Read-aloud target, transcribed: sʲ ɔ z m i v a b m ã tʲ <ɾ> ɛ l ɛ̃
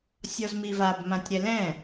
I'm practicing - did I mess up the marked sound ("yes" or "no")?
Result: no